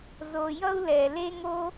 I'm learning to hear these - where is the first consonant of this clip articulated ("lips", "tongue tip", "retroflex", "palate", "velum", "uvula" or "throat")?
tongue tip